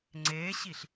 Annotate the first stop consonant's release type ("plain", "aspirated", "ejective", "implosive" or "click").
click